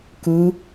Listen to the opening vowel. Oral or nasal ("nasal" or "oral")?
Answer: oral